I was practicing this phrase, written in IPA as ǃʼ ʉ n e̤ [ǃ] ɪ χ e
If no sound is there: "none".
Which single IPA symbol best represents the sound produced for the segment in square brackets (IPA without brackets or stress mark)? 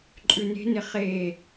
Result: n